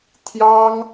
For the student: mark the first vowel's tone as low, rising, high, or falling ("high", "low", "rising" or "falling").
high